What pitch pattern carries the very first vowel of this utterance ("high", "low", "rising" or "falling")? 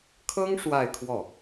high